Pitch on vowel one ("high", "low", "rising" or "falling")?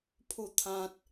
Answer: falling